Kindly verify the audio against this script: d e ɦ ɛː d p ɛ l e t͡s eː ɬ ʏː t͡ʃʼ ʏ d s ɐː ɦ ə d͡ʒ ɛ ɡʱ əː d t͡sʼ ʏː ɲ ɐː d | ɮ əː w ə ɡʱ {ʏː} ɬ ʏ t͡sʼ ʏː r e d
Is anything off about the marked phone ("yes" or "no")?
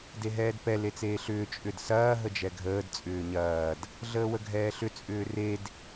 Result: yes